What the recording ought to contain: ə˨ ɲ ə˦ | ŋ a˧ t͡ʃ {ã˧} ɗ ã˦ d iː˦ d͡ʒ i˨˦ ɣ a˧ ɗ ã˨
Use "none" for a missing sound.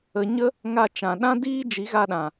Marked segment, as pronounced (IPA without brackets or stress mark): ã˨